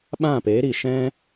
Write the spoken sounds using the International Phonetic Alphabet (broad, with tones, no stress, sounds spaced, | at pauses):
ɓ ã˦˨ p eː˨˦ ɾ i˨ ʃ ɛ̃˦